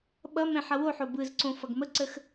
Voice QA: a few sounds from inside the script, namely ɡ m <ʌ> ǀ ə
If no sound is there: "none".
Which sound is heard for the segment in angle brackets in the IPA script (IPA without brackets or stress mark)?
ə